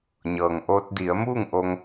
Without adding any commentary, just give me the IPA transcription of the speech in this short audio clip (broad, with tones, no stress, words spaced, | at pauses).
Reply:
ɲɤː˩ŋʔoː˧t̚ di˩˧ə̯muː˥˨ŋʔo˧ŋ